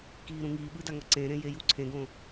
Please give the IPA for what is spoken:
kiːɾũŋiːɓɯ daŋʌǀẽɾẽ jejuǀʰẽɡõ

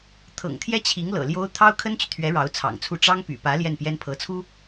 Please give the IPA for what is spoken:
t̪ʰɤ̰˨˩ŋt̪ʰjɛ˥ t͡ɕʰi˧˥ŋ lɤ̰˨˩ ljo˥ʊ̯ t̪ʰɑ˥ʊ̯kʰə˥nt͡ɕy˨t̪ʰɥɛ˧˥ ɻɑ˧˥ʊ̯t͡sʰɑ̰˨˩ŋt͡sʰu˥˩ ʈ͡ʂɑ˥ŋpy̰˨˩pä˧˥ ljɛ˥˩npjɛ˥npʰɤ˧˥t͡sʰu˥

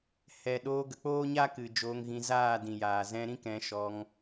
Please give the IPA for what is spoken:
hɛ˨ ɗoː˧ɡə˨k͡poː˦ɲa˦ kɨ˨d͡ʒoː˧ŋɣĩ˧ zaː˦˨dĩ˨jaː˨ zɛ̃˧ɾĩ˦k ɛ̃˧ ʃɔ˧ŋ

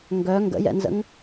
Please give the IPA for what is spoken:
ŋɡœ ŋɡə̰jɛ̰nzə̰ŋ

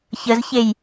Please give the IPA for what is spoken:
çəzçej

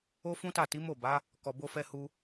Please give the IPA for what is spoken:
o˦fũ˦ta˦˨ ti˨˦ mo˦˨ba˨˦ | kɔ˧bo˦fɛ˦hu˦

